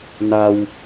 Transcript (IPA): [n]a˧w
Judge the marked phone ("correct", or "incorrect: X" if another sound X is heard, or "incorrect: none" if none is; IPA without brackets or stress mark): correct